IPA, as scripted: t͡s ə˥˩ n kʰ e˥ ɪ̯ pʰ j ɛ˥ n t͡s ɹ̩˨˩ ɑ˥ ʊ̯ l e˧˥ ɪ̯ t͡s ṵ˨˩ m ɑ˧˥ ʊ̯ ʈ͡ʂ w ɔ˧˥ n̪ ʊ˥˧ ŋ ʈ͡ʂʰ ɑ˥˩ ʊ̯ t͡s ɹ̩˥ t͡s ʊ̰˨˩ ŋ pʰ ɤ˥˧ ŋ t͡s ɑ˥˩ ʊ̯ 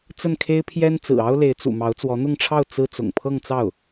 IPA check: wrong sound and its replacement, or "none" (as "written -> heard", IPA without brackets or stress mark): ʈ͡ʂ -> t͡s